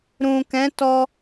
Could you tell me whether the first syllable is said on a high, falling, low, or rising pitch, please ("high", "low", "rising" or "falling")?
low